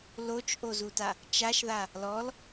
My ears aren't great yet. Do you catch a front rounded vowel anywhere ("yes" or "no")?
no